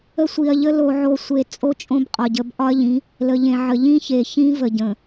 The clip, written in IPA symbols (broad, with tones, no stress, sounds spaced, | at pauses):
ə˦ sʷ i˨ ɐ̯ ʎ ə˦ l o˨ ʕ o˨ sʷ e˨ t͡sʼ o˦ t͡ʃʼ õ˦ b qʼ ɒ˨ ɟ ə˨˦ b ʔ ɒ˦ ɐ̯ ʎ ĩ˨˦ | l ə˨ ʎ ẽ˨ ʕ ə˨ ʎ ĩ˦ ç e˨ ç ĩ˦ v ə˨ ɟ ə̃˨